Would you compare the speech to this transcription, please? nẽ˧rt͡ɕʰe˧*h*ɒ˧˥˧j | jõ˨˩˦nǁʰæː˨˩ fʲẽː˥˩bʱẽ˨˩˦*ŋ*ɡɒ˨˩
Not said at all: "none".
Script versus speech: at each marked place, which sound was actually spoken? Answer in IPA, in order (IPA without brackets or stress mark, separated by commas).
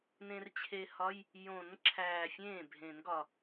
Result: h, n